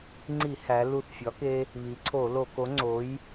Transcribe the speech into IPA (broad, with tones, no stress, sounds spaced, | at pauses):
ŋ͡ǀ i˧˩˧ h æ˩˧ l u˧˩ θ fʲ ɒ˨˥ k e˦ | β i˩˧ ǀʰ o˧˩˧ l o˧˩˧ k o˨˥ ŋ͡ǀ o˨˥ j